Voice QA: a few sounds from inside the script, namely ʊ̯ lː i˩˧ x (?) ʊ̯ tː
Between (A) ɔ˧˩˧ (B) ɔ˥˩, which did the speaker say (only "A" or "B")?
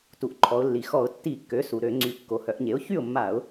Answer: A